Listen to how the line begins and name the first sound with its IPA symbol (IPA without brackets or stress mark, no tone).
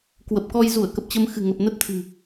k